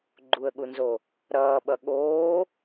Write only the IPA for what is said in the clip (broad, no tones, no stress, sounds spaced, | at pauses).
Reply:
ɡ͡ǃ u ə̯ ɠ u n z o | ɾ ʌː ɓ ʌ ɠ oː